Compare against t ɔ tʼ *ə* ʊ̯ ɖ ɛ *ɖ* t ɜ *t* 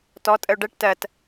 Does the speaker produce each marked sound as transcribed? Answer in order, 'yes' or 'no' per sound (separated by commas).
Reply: yes, no, yes